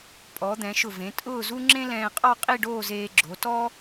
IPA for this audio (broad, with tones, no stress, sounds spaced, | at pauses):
pʼ ɔ˩˧ d̪ ɛ̃˩˧ ʃ ʊ˧˩ v ẽ˩˧ tʼ ʊː˥˧ z u˥ ŋ͡ǁ ẽ˥ l ɛ̃ː˧ qʼ ɔ˥˧ qʼ i˥˧ ɖ oː˥˧ z eː˧ ɡ͡ǁ o˩˧ t ɔ˥